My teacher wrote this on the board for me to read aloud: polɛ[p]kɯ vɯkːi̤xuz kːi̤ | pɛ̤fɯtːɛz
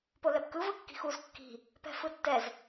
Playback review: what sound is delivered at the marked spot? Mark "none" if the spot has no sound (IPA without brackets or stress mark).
p